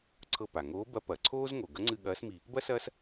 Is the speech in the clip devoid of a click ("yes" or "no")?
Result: no